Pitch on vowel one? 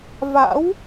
rising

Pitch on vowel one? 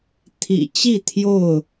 low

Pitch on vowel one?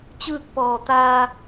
falling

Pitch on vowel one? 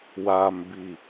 low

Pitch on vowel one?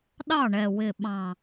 falling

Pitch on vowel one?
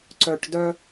low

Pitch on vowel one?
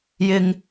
high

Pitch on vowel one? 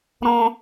low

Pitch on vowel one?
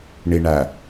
low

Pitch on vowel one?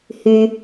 low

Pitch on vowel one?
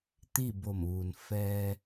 falling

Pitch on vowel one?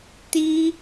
high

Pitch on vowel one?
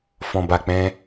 low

